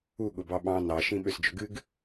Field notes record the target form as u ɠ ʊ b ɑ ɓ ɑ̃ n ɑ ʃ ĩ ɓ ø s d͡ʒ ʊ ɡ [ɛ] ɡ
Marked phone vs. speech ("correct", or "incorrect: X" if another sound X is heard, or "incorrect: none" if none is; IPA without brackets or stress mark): incorrect: ɨ